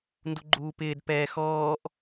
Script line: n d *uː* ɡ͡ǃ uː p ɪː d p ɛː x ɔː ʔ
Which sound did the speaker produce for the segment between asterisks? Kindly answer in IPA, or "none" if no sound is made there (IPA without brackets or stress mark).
u